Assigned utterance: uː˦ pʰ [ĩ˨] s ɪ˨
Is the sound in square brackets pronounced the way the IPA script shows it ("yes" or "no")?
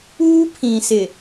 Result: yes